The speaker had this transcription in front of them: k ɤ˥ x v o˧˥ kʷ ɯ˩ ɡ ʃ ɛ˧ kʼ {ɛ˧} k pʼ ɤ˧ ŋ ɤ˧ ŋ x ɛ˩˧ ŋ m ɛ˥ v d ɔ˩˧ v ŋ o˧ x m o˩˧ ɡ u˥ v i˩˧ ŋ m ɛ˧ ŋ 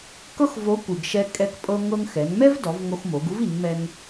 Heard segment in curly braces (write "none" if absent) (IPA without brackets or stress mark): ɛ˧